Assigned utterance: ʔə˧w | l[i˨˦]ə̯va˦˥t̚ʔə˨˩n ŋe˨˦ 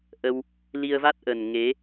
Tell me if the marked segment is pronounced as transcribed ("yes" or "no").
no